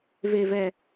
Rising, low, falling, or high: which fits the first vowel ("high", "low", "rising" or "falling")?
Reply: low